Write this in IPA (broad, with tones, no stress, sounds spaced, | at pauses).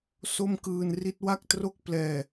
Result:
s o˥˩ m k ɯː˧ n r i˦˥ t̚ w a˥˩ k̚ t r o˥˩ k̚ p l ɛː˧